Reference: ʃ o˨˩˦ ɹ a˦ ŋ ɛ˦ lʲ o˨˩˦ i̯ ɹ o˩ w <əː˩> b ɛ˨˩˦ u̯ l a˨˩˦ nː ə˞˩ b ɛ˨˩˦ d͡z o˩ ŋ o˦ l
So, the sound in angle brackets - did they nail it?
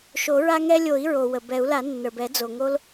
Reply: no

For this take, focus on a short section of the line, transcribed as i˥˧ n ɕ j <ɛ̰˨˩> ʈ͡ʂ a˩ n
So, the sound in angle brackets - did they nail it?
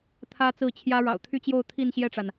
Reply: no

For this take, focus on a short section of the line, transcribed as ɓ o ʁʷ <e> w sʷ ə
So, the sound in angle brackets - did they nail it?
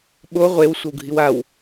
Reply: yes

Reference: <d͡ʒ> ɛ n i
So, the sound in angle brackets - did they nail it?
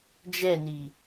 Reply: yes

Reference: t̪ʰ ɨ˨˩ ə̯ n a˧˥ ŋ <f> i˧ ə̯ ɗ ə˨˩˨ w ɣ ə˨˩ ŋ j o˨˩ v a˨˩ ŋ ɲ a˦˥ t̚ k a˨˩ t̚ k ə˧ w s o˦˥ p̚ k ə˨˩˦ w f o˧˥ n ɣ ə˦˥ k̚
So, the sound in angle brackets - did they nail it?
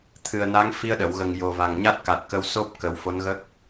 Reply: yes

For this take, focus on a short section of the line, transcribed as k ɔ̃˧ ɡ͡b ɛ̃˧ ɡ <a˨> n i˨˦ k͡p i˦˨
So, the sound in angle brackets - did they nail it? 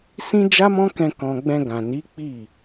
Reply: no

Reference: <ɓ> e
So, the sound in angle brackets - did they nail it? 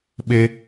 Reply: yes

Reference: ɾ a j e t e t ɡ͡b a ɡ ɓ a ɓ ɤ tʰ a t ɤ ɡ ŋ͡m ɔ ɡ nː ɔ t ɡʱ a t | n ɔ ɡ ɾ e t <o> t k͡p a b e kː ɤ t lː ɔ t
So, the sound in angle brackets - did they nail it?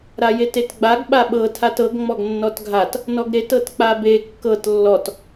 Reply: no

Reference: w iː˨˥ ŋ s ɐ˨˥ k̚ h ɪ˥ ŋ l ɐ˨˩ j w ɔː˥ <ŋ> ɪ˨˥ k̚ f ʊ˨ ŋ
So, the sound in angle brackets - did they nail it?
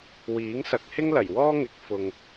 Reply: yes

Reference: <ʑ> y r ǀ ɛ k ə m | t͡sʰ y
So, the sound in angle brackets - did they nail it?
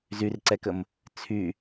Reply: no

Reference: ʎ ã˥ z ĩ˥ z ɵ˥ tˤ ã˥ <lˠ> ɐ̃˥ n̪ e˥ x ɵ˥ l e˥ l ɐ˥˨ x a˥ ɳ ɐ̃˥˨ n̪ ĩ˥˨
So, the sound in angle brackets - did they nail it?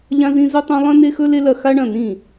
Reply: yes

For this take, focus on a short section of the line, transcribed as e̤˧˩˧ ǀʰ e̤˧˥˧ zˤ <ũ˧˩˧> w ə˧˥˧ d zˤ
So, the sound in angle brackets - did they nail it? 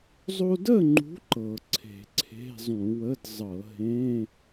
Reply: yes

